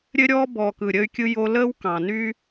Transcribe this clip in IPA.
ɾʲ ɘ˧ ɾʲ ɔː˧ b ɔː˨ k ɯ˨ ɾʲ ə˧ y̯ kʲ ɯ˧ j o˧ l əː˦ w k ɑ̃˨ n y˦

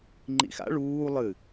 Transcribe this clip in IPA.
ŋ͡ǃ ḭ x a̰ ɭ uː lˠ ɨ

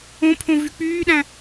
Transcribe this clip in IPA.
õ pʰ õ v y k͡p yː ɗ æ̃

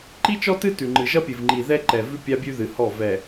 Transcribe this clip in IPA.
ǃ i˦ t͡ʃ ɔ˦ t ɨ˦ t ʉ˨ ŋ͡ǃ ɨ˨ ʒ ʌ˦ pʲ ɨ˨ v ŋ͡ǃ i˨ ð ɛ˦ ǃ ɛ˨ v ʉ˦ pʲ a˦ bʲ ʉ˦ ð ɨ˨ h ɔ˦˨ v ɛ˨

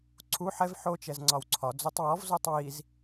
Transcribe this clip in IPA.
ǀʰ u ħ ɛ v ħ o t͡ʃ ɛ z ŋ͡ǀ ɒ w ǀʰ ɒ d͡z o tˤ w ɔ v z o tˤ w i z

